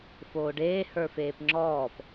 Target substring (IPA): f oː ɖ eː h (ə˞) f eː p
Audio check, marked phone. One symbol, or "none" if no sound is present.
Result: ə˞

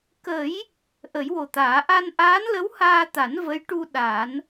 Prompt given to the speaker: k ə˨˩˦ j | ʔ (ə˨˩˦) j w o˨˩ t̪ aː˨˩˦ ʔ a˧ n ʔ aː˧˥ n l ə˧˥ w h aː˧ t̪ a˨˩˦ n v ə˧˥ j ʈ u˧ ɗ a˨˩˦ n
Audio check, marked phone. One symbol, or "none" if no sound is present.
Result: ə˨˩˦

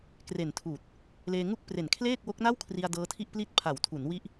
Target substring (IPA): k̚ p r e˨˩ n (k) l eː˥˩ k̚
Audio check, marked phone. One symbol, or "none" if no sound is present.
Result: kʰ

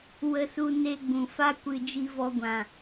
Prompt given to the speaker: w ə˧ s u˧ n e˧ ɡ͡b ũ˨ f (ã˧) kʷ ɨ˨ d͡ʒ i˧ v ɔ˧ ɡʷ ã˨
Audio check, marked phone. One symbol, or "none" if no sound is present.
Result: a˧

